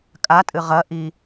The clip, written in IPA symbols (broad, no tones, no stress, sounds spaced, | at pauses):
kʼ a tʼ ɨ ʁ ɐ ʔ i